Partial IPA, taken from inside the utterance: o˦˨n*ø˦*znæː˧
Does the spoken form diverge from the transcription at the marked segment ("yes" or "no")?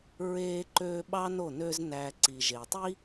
no